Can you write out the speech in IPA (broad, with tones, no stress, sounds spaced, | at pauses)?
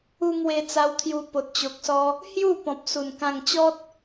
u˧ ŋ w e˧ t͡s a˧ w t̪ʰ j u˧ p o˨ t̚ t͡ɕ o˨ k̚ s ɔ˧ | h j u˥˧ p ɔ̃˨ p̚ s u˨˩ n k ã˧ ŋ t͡ɕ ɔ˦ t̚